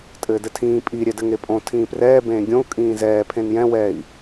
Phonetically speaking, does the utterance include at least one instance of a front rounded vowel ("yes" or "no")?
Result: no